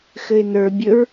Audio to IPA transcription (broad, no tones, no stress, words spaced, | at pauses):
xɘɪ̯nə˞ bʲɵɹ